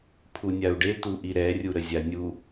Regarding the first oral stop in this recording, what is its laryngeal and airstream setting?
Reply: aspirated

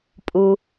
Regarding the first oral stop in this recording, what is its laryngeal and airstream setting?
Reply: ejective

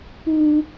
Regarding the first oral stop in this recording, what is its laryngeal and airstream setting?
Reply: plain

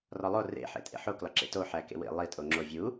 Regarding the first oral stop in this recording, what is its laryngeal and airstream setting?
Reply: ejective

